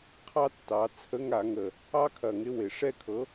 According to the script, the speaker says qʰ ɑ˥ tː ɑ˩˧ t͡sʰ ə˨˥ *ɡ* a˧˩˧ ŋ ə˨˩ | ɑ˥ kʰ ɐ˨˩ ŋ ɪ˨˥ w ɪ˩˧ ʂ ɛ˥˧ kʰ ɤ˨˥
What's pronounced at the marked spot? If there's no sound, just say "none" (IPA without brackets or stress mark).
ŋ